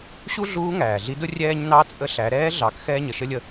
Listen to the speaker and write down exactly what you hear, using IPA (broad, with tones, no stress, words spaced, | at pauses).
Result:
ɕu˥ɮuː˧˥ ŋæː˩ɮi˧˥dʊ˥ rʲɛː˧ɲnɑ˧ t͡sʼə˧ ɬæ˩˧ ɾɛː˧˥ɮɑ˩˧k xɛː˥ɲə˩ʃə˥lʲə˧